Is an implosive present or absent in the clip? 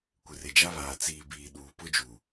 present